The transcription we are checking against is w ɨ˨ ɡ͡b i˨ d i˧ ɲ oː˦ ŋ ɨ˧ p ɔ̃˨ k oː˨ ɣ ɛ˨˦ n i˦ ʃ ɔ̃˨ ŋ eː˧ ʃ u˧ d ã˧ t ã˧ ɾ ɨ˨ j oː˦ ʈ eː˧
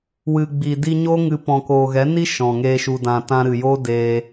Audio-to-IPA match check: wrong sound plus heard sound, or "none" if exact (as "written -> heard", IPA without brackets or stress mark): ʈ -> d